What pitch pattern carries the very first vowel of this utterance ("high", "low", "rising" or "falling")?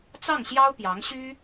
falling